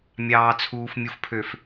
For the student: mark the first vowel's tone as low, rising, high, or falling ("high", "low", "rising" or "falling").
low